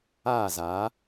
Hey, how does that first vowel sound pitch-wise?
falling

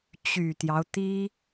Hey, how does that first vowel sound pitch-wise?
low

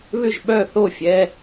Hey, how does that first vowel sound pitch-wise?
falling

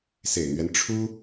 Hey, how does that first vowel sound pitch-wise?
low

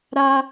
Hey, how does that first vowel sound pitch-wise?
high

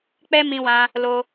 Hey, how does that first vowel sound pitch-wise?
high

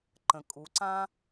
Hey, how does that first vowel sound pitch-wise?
low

